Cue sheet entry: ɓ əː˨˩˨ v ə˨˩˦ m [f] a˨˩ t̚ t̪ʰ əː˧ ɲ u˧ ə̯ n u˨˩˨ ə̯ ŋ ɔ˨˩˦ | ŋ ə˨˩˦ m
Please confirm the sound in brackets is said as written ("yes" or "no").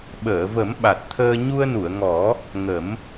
no